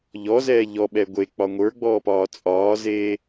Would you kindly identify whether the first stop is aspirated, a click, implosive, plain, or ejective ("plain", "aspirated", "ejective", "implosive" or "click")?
implosive